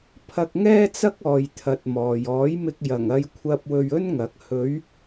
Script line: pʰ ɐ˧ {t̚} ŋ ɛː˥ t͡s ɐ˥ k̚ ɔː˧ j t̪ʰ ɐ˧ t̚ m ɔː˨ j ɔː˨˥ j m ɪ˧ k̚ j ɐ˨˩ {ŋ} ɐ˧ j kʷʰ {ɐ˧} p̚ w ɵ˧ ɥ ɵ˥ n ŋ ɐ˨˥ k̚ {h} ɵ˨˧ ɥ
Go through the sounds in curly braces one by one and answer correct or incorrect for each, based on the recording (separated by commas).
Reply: incorrect, correct, correct, correct